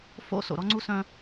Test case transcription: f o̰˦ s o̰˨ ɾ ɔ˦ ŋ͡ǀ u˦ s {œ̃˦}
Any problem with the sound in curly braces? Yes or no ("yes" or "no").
no